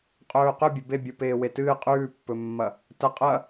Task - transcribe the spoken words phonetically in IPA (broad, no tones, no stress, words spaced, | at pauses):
qʼɵːqɵ bʲɵbebʲu peːwetɨː qʼʉːpːɵmːɐ | tɐ qʼɐ